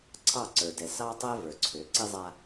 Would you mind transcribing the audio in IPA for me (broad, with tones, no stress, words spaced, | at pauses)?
ǀʰɑ˦˨ǀə˞˨dɛ˨ sɑ˦tˤɛ˦ və˞˨ǀʰø˨˦ ǀi˦zˤa˦